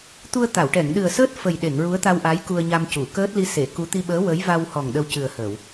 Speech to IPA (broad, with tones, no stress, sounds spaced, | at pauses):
t̪ u˧ ə̯ t̪ a˨˩˨ w ʈ ɛ˨˩˨ ŋ ɗ ɨ˨˩ ə̯ s əː˦˥ t̚ f ə˨˩ j ɗ e˨˩˨ ŋ ɹ u˧˥ ə̯ t̪ a˧ w ʔ a˧˥ j k u˧ ə̯ ɲ a˧ m c u˨˩˨ k əː˦˥ t̚ l i˧ s e˨˩˨ k u˧˥ t̪ i˧ ɓ əː˧˥ w ə˧˥ j v a˧ w h ɔ˨˩ ŋ ɗ ə˧ w c ɨ˨˩ ə̯ h əː˨˩˨ w